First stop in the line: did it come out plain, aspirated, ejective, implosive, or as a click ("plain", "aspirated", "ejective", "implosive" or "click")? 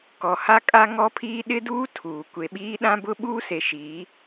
plain